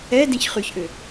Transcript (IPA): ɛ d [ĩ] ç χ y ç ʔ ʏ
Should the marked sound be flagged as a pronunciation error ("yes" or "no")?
no